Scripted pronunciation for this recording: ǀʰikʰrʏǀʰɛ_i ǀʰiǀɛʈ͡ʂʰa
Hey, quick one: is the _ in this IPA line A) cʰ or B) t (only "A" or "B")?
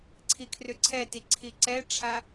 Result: B